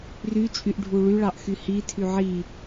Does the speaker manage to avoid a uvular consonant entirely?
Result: yes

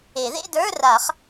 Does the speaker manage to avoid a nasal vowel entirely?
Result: yes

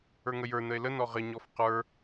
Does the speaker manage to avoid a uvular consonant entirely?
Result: no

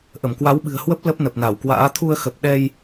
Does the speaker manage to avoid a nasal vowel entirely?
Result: yes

